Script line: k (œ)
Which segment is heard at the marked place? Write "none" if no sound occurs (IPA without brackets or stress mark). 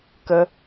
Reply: ə